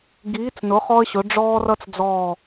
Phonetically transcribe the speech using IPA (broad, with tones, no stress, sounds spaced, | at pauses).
ɡ iː˨˥ t͡s n ʊ˨˥ χ ɔ˥ ə̯ ɕ ʊ˨˥ ɖ͡ʐ ɔː˥ r ʌ˥ t͡s d͡z ɔː˦˨